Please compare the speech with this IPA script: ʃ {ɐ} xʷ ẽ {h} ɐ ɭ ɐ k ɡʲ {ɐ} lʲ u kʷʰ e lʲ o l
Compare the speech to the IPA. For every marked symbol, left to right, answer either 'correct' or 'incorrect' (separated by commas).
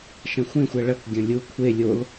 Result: incorrect, incorrect, incorrect